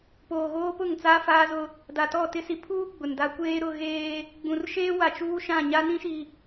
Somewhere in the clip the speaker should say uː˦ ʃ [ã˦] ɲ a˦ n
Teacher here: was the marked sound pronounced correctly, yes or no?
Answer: no